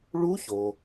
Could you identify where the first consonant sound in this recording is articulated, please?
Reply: retroflex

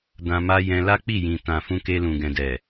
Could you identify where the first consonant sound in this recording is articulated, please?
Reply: alveolar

